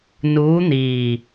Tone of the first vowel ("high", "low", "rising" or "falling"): rising